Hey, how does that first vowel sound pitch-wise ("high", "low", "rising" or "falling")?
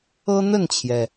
high